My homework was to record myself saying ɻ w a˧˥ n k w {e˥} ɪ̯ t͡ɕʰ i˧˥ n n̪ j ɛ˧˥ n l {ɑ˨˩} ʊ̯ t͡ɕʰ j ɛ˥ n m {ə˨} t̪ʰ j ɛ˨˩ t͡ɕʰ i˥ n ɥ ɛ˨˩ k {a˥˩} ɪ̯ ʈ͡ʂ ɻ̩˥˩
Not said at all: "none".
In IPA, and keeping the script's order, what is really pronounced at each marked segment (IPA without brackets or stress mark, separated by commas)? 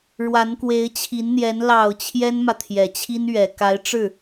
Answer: e˧˥, ɑ˨˩, ä˨, a˧˥